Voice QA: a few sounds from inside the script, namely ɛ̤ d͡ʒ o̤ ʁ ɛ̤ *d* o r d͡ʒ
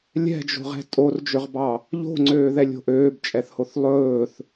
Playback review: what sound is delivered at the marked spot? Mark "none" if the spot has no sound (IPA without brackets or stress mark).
tʼ